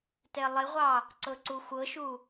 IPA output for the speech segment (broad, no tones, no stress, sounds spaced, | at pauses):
t ɛ lˠ ɪ ʁʷ ɑ | ǀ ɤ ǀ u xʷ ɤ ʃ u